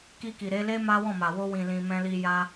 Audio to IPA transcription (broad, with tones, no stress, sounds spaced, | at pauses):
k i˧ k i˨ ɾ e˨˦ l e˦ m a˦ w ɔ̃˦˨ m a˨ w o˧ w ĩ˨ l ĩ˨ m ɛ̃˧ l i˧ j a˧